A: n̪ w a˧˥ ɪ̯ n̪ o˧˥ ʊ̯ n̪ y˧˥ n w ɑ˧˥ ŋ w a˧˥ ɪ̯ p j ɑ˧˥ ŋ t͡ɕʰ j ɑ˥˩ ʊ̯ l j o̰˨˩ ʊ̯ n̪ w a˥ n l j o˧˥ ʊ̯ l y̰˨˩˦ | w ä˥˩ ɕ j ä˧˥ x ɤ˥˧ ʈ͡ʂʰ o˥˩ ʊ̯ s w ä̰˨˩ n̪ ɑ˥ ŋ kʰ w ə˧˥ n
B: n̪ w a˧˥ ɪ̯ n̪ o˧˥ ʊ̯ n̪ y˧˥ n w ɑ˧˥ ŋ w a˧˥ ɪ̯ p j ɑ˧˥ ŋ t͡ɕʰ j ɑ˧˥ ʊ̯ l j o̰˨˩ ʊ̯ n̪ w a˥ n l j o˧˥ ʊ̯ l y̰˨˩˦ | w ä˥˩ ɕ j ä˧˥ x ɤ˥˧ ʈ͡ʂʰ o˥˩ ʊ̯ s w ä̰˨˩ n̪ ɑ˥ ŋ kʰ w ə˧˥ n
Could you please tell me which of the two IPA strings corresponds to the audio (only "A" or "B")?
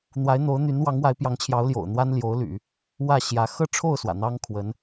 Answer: B